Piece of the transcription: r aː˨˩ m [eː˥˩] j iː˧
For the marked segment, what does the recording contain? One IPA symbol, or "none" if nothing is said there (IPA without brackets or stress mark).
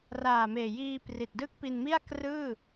eː˨˩